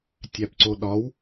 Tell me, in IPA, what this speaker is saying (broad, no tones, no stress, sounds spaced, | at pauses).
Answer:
tʲ æ p ǀ o ɗ ɒ w